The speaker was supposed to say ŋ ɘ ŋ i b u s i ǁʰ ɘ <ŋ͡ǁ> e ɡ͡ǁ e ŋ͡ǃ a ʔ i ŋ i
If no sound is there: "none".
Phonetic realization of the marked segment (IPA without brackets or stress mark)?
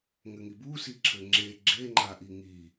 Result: ŋ͡ǁ